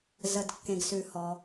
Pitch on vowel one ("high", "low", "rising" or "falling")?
low